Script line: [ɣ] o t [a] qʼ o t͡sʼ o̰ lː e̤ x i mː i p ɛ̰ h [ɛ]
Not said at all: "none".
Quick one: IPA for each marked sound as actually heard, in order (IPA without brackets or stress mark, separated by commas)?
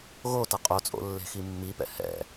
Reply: ɣ, ʌ, ɛ̰